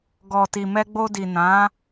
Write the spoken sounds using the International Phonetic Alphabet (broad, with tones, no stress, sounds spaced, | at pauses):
ɡ ɔ˨ t i˨ m ɛ˧ ɡ͡b o˧ d i˨ n ã˨˦